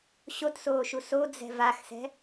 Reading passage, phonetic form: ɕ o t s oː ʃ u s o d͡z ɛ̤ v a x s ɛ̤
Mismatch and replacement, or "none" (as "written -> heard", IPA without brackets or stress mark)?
none